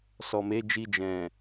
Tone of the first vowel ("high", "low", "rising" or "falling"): low